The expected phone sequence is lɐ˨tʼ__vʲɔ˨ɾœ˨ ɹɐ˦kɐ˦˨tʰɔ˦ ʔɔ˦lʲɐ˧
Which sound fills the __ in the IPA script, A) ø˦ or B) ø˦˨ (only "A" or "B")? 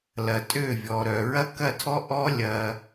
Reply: B